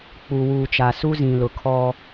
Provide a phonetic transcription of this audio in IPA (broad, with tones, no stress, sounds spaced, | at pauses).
k͡p u˨ w uː˨ t͡ʃ a˨ s u˦ z ĩ˨ l ʊ˨ kʰ ɔ˦